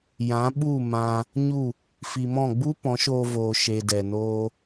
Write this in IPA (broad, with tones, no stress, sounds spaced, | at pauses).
j ã˨˦ ɓ u˦˨ m ã˧ | ɲ u˦˨ | f i˨ m ɔ̃˦˨ ɡ͡b u˦ p ɔ̃˨˦ ʃ oː˧ v oː˨ ʃ e˧ d ɛ˨ n oː˦